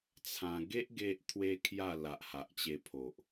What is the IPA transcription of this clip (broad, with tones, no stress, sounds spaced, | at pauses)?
t͡sʰ ã˧ ɡ e˦ ʔ ɡ e˦ ʔ t̪ʰ w e˦ kʰ j a˥˧ l a˨ ʔ h a˨ ʔ t͡ɕ e˧ pʰ o˨ ʔ